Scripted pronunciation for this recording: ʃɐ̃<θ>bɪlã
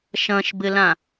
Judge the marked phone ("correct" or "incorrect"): incorrect